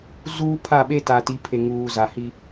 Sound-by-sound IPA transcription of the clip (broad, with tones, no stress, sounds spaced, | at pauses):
z uː˦ pʰ a˦˨ ɓ e˦ t a˨ t i˨˦ pʰ e˨ ŋ uː˨ z a˨ h i˦